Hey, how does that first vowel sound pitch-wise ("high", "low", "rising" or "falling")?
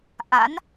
rising